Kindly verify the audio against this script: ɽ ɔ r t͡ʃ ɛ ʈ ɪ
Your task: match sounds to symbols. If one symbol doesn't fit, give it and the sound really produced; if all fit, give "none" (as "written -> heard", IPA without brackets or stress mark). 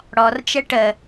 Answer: ɪ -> ə